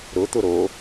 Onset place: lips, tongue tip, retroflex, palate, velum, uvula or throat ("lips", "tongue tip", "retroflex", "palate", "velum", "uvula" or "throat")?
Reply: tongue tip